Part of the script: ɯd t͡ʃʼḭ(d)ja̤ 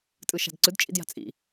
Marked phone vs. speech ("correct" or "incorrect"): correct